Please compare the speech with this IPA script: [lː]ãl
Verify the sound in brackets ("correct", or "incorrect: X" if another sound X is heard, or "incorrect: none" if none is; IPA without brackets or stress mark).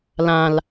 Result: incorrect: l